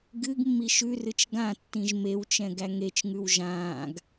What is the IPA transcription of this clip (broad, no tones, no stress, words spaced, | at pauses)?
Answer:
ɡɨɡmːi ʃʉrɨt͡ʃ ɡãtːĩʒ mewt͡ʃɛ̃ ɡæŋet͡ʃŋʉw ʒãːɡ